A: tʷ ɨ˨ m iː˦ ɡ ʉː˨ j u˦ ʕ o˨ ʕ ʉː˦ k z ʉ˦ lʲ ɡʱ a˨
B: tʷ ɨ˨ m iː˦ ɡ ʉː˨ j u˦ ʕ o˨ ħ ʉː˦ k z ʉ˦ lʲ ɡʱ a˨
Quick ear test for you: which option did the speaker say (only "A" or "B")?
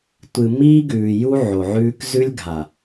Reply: A